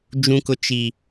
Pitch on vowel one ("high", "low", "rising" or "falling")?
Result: high